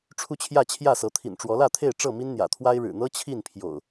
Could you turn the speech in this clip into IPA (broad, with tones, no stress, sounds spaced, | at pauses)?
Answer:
ʈ͡ʂʰ u˦ t͡ɕʰ j ä˥˨ t͡ɕʰ j ä˥˨ s ɤ˨˦ t̪ʰ ḭ˨˩ n ʈ͡ʂ w ɔ˨˦ l ä˥˨ t̪ʰ e˥˨ ɪ̯ ʈ͡ʂ ɤ˥˨ m i˦ n n̪ j ä̰˨˩ t̪ʰ w a˦ ɪ̯ ɻ ɻ̩˨˩ n̪ ɤ˦ t͡ɕʰ i˥˨ n pʰ j o̰˨˩ ʊ̯